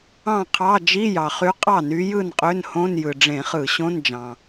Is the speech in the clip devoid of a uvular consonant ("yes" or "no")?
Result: no